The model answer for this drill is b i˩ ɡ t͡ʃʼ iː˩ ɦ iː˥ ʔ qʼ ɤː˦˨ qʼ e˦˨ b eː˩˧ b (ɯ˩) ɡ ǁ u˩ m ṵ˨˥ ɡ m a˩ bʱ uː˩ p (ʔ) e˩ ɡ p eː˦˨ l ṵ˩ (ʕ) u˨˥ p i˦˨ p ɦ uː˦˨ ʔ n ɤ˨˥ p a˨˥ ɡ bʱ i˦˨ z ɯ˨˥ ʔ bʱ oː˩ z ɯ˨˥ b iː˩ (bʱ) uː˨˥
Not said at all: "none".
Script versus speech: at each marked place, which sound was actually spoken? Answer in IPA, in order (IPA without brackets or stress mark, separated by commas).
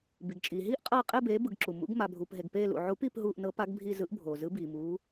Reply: ɯ˩, ɦ, ʕ, m